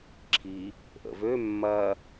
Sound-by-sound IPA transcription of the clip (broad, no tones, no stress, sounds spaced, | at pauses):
ǁʰ i | ʔ ə̰ v ø mː ɐ